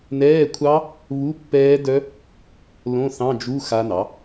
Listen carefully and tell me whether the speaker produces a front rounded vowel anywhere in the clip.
yes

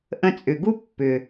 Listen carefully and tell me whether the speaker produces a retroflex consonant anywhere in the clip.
no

